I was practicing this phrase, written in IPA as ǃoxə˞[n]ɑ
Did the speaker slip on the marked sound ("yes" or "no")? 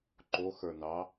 no